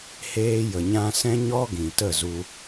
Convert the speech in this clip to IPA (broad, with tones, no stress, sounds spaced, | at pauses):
h eː˧ j ə˨ ɲ ã˧ s ɛ̃˦ ɲ ɔ˦ ɡ ĩ˨ t ə˦˨ z u˧